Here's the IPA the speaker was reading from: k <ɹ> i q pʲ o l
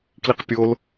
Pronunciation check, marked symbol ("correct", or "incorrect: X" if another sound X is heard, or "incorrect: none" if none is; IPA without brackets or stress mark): incorrect: l